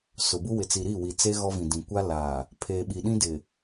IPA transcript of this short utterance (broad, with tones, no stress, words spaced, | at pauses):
sʊ˨ bu˦ wɪ˨t͡si˨ɾi˦˨wi˨ t͡se˦ ɣɔ˦vĩ˨ dĩ˨ kʷa˦laː˨ | pʰeː˨ɓi˨ ɗĩ˦dɪ˨